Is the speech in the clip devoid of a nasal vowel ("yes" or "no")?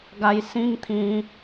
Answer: no